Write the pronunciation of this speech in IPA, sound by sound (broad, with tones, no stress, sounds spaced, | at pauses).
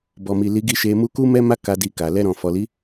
b ɔ˨ m i˨ l i˨˦ ɡ i˦˨ ʃ e˧ m u˦ k u˦ m ɛ˦ m a˦ k a˧ d i˧ k a˨ l ɛ˧ ɾ ɔ̃˨ f ɔ˨ l i˨˦